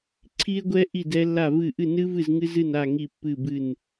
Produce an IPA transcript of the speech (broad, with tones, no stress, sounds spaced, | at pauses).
ǀʰ i˦˥ e̯ ɡʷ ɛ˦˥ ʔ i˥˨ d ɛ˦˥ lː a˥˨ v ɨ˥˨ ʔ ɨ˥˨ n ɨ˦˥ v ɨ˥˨ z ŋ ɨ˦˥ z ɨ˥˨ n a˥˨ ŋ i˥˨ pː ɨ˥˨ b ɨ˥˨ n